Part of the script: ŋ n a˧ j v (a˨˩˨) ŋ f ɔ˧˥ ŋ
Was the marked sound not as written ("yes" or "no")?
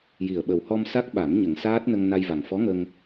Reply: yes